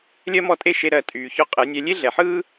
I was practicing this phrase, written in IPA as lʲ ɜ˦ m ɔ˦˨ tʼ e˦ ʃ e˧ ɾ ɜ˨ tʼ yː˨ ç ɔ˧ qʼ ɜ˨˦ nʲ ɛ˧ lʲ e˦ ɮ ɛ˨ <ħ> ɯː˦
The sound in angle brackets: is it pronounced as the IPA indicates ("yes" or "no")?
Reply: yes